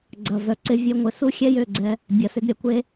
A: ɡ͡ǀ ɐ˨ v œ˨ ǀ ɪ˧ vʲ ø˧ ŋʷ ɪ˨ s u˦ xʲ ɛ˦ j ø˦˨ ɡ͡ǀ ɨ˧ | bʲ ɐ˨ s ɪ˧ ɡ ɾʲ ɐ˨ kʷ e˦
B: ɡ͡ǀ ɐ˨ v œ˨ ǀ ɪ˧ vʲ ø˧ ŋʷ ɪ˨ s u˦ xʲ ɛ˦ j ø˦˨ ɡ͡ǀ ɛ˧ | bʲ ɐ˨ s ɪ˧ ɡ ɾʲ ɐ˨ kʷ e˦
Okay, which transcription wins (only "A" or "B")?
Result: B